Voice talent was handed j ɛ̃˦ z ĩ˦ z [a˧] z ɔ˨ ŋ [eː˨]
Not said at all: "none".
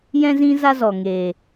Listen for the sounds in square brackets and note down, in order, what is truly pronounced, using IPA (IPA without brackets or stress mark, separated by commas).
a˦, eː˨